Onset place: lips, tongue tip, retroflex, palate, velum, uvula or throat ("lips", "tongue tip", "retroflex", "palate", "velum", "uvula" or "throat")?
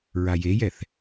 tongue tip